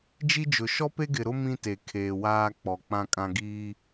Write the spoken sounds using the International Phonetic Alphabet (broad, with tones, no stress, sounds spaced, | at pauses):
d͡ʒ i˦ d͡ʒ ʊ˨ ʃ ɔ˦ p e˦ ɡ ɪ˨ ɾ ʊ˦ m ĩ˦ t e˨ kʰ eː˨ w aː˦ k͡p ɔ˨ k͡p ã˦ kʼ ã˦ ɡ iː˦